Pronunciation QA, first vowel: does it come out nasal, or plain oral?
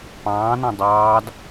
nasal